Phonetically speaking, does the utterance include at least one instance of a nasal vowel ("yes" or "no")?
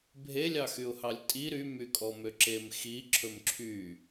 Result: no